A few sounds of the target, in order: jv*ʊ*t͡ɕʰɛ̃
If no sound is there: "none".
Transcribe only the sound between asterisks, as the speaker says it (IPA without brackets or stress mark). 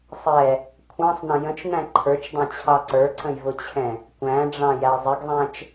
ʊ